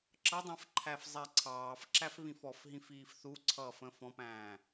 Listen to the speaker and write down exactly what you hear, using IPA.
ǁ ʌ dˤ ɛ̃ f ǃʰ æ f zˤ ɛ ǀʰ ɑː f ǁ æ f β ĩ f ɔ f ɦ ĩ f iː f θ u ǀʰ ʌː f ə̃ f ɔ̃ p æ̃ː

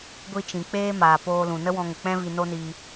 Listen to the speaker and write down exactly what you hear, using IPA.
ɡʷ i˦ t͡ʃ ĩ˨ k͡p eː˦ m aː˨ p oː˧ l ũ˨ n ə˦ w ɔ̃˧ ŋ ə˨ k͡p ɛ̃˦ v i˧ n o˦ n iː˧

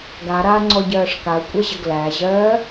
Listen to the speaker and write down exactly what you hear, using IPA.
ɡ a ɾ aː ŋ͡ǀ ɔ ɟ ɜː ʂ k a ə̯ kʷʼ ɛ ʑ ə ɡ l æ ʑ ɜː

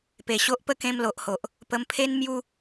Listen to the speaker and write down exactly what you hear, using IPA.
p e˨˩ ɕ o˦ ʔ p ə˦ k ẽ˧ m l o˨ ʔ h o˨ ʔ | p ə˧ m pʰ e˦ n m j u˦

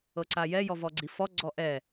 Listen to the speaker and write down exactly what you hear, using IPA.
ɤ ǀ a j ɛ j ɔ v ɔ ɡ͡ǀ i f ɔ ɡ͡ǀ ɔ ʔ ɛ

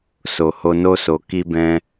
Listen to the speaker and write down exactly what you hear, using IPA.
s o˨ h o˧ n o˦ s o˧ k i˦ b ɛ̃˦

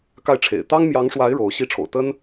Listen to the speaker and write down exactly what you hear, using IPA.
k a˥˩ ɪ̯ ʈ͡ʂʰ ḛ˨˩ ɪ̯ t̪ ɑ˥ ŋ m j ɑ˧˥ ŋ ʂ w a˧˥ ɪ̯ ɻ o˧˥ ʊ̯ ɕ i˥ ʈ͡ʂʰ o̰˨˩ ʊ̯ t̪ ə˥ n

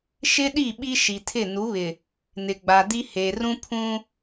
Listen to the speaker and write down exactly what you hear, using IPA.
ʃ ɪ˦ ɗ i˦˨ ɓ i˦ ʃ i˨ tʰ ɪ˦˨ n u˨˦ β ɪ˨ | n ɪ˨ ɡ͡b a˨ d i˦ h eː˨ r ũ˦ pʰ ũ˦

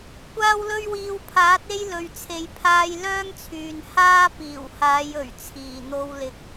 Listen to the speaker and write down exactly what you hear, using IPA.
kʷ aː˥ w l ɵ˥ ɥ w iː˧ w pʰ aː˨˥ t̚ e˥ j l ɵ˧ ɥ t͡sʰ e˧ j pʰ aː˥ j l œː˥ ŋ t͡sʰ yː˨ n h aː˥ p iː˨˩ w h aː˨˧ j ɵ˨˩ ɥ t͡sʰ iː˨˩ n̪ o˧ w l ɪ˨ k̚

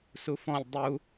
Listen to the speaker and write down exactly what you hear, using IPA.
s u f ɔ̃ lʲ dˤ u

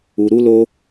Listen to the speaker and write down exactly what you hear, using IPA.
u˧ ɾ u˦ l o˦

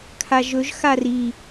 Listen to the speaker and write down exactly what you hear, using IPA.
kʰ a ʒ ɵ ʒ x a r i

